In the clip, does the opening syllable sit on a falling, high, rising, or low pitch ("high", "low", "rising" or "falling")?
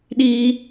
high